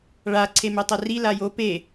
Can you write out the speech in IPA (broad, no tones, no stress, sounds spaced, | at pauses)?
ɭ a ǀʰ e m e tˤ ɛ r i l a j o p e